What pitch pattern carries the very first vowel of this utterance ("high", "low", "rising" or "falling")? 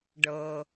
low